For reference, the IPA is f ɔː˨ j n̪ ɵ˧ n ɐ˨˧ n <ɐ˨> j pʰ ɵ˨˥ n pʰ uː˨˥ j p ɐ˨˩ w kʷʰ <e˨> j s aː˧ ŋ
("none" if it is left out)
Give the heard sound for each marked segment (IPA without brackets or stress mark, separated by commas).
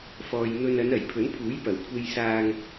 ɐ˨˩, e˧